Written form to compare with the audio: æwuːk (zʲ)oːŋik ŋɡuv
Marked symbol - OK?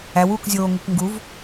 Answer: yes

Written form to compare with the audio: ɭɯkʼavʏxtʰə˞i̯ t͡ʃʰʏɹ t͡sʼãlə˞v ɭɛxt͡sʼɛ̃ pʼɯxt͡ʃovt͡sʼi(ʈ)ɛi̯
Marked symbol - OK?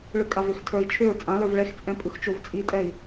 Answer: no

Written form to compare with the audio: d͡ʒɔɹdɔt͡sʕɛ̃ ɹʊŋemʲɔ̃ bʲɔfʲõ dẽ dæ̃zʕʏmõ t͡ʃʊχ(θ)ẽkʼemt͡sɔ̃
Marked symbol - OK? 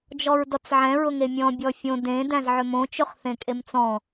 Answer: yes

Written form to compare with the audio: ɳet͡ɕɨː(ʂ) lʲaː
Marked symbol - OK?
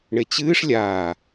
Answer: yes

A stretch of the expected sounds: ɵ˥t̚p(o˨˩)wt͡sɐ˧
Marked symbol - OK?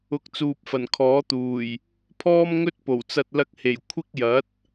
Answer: yes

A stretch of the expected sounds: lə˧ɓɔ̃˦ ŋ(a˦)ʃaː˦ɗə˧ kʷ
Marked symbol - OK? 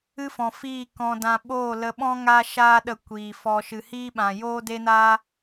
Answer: yes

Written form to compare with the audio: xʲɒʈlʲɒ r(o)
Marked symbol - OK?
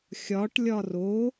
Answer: yes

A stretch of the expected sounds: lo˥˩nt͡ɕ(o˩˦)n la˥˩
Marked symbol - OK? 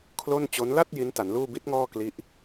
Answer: no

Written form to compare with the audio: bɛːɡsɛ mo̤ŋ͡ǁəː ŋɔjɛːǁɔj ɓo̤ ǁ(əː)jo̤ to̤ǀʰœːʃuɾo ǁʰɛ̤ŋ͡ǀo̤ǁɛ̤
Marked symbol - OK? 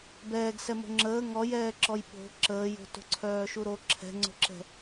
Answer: yes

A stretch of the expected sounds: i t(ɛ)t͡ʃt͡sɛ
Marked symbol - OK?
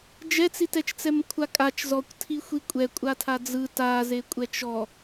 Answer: yes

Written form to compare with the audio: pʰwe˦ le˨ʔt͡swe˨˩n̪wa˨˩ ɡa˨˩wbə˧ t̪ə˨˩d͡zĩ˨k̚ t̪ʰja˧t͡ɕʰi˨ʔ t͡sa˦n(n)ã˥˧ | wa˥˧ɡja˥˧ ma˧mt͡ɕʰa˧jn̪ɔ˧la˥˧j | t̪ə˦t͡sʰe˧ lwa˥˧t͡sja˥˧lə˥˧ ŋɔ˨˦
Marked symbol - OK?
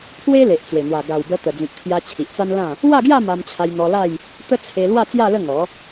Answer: no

